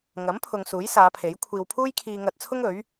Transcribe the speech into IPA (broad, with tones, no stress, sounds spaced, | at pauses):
ŋ ɐ˨˥ m pʰ ʊ˨ ŋ s uː˨˥ j s aː˨˧ pʰ e˨˥ j kʷʰ iː˧ w pʰ uː˥ j kʰ iː˧ ŋ ɐ˧ t̚ t͡sʰ ʊ˥ ŋ ɵ˨˥ ɥ